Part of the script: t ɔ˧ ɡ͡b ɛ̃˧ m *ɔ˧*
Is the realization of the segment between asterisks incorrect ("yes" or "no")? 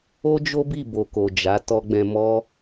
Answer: yes